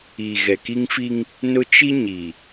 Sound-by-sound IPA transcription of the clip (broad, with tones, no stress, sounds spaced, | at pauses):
iː˨ ɣ ɛ˨ k i˦ ŋ f i˦ ŋ | n ʊ˦ t͡ʃ i˦ ɲ i˨